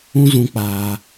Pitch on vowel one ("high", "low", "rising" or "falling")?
high